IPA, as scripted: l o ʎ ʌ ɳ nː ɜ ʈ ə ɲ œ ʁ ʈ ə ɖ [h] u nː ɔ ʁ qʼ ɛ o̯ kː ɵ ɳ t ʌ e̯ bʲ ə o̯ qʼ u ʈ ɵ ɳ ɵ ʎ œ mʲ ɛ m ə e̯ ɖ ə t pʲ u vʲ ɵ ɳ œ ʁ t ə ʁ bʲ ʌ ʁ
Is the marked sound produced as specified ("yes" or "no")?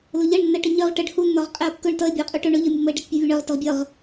yes